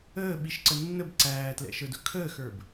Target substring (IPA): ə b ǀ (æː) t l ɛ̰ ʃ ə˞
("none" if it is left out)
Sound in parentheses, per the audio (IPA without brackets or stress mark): æː